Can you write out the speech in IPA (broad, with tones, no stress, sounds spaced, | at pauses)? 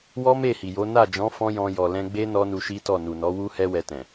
w ɔ˦ m e˦˨ h i˨ j o˨˦ n a˦˨ d͡ʒ ɔ̃˨˦ f ɔ̃˦ j ɔ̃˧ j ɔ˨ l ɛ̃˧ ɡ͡b e˦ n ɔ˦ n u˧ ʃ i˦ t ɔ˦˨ n u˨ n ɔ˨˦ w u˦ h ɛ˦ w ɛ˧ t ɛ̃˨